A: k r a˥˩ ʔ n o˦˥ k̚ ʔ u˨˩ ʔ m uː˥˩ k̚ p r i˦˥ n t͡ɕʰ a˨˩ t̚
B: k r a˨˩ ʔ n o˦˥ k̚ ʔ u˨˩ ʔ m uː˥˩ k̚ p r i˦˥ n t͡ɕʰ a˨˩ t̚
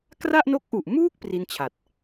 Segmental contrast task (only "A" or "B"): A